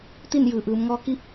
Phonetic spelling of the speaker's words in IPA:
t̪ i˥˨ n j ɯː˩ ʔ ɯː˩˧ m ŋ ɔː˧˥ k i˧˥ p̚

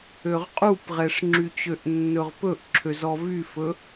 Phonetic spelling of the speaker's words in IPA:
ø ʁ qʼ u p ʁ ɛ ʂ ŋ͡ǁ y t͡ɕ ø ʔ nː ɵ ʁ p ɵ ʔ ǁʰ ø z ɔ v y f ɵ

